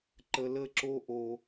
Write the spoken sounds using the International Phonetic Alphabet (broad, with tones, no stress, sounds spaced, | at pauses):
ǃ ə˧ l ə˦˨ ǁ o˦ ʔ o˧